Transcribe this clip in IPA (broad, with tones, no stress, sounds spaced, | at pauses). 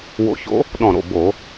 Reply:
w o̰˧˥ ç o̰˧˥ | ɗ ɔ̃˧˩ ɾ o̰˧˩ b o˧˩˧